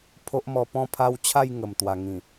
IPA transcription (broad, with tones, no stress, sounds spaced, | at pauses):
pʰ o˦ ʔ m ɔ˧ p ɔ̃˥˧ pʰ a˦ w t͡ɕʰ a˥˧ j ŋ ə˨˩ m t̪ w a˨˩ ŋ ĩ˨˩